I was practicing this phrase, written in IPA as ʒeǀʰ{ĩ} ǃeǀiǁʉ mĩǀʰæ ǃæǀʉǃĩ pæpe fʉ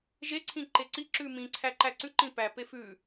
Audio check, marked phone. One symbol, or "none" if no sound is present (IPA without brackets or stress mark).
ĩ